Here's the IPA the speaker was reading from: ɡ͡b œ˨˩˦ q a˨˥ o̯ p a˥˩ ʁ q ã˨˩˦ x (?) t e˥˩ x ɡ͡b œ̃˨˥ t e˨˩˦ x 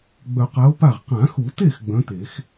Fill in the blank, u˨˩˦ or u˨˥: u˨˩˦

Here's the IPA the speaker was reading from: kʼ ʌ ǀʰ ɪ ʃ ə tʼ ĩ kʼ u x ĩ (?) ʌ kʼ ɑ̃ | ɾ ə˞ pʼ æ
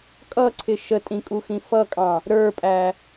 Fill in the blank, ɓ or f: f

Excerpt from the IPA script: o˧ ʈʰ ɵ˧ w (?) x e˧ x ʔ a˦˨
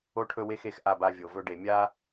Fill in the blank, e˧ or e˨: e˧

